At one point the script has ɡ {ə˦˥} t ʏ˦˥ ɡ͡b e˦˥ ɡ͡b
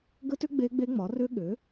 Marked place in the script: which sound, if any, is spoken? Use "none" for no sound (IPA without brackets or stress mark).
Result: ə˦˥